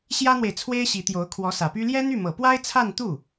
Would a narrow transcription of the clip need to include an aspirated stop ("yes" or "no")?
yes